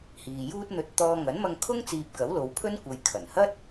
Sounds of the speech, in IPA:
h iː˨ j uː˥ t̚ n̪ ɵ˧ t̚ t̪ ɔː˧ ŋ ɐ˨˥ n m ɐ˧ ŋ kʰ ʊ˥ ŋ t͡s iː˧ p̚ k ɐ˨˥ w l o˨˧ w pʰ ɵ˥ n kʷ ɐ˨ j kʰ ɐ˨˩ n h ɐ˥ t̚

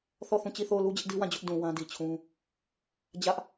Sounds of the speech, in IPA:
θ ɔ˦˨ θ ũ˦˨ t͡ɕ i˦˨ θ o˦˨ ʊ̯ l u˦ d͡ʑ ɪ˦ ʔ d i˦ w ã˦˨ d͡ʑ ʊ˦ ʔ d ũ˨ w ã˦ d i˨ t͡ɕʰ ũ˦ | d͡ʑ ä˦ ʔ

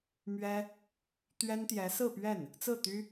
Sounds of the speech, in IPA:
m ɥ ɛ˥ | t̪ ɥ ɛ˥ n t̪ j ɛ˧˥ s ɹ̩˥˧ p ɥ ɛ˥˩ n | t͡s ɹ̩˥˩ t̪ y˥

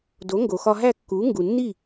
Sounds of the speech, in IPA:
d o˩˥ ŋ ɡ o˩ x ɒ˧ ɦ æ˥˩ kː u˩˥ ŋ ɡ u˩ nː i˥˩

